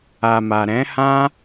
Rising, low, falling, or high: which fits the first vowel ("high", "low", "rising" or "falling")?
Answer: low